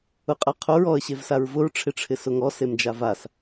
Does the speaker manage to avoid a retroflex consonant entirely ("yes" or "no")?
no